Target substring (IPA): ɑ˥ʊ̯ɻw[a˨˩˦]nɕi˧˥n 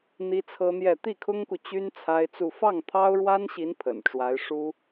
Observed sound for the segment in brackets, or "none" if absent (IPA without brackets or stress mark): a˥